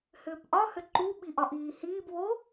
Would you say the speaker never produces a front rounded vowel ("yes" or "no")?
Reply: no